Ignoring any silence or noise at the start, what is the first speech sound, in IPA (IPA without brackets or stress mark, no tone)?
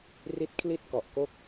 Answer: r